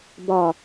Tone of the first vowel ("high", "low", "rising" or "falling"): low